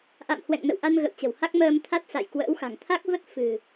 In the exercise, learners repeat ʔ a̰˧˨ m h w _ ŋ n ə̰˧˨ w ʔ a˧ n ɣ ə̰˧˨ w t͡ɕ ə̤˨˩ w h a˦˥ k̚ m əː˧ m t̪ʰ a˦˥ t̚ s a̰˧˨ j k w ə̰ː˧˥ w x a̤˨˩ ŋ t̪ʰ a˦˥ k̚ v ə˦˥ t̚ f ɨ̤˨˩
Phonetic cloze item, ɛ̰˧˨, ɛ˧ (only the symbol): ɛ̰˧˨